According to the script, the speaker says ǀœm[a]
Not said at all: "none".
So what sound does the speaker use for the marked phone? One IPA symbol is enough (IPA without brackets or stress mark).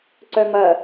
ɐ